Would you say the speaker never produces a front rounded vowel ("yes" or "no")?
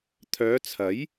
no